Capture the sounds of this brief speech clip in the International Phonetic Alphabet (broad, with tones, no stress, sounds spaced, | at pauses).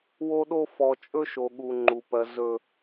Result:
w o˦ ɗ o˦ f ɔ˨ t͡ʃʼ ɵ˦ ʃ o˨ ɠ u˨ ŋ͡ǃ u˨ p ɜ˨ z ɵ˨